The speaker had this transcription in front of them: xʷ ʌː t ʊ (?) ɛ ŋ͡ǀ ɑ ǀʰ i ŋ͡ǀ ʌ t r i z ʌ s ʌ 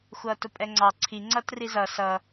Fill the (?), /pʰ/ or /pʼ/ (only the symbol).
pʼ